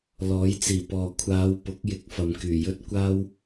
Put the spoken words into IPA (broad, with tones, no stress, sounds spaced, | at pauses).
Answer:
l ɔː˨˥ j t͡s iː˨˩ p ɔː˨ kʷʰ aː˨˧ w p ʊ˨˥ k̚ j ɪ˨˥ k̚ f ɐ˨ m k yː˨˩ j ɵ˥ t̚ kʷ aː˥ w